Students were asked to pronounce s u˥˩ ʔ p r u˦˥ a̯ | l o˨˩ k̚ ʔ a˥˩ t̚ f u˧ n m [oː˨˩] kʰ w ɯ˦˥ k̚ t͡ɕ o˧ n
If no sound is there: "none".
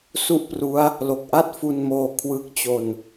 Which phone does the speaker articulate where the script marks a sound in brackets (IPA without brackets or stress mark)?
oː˧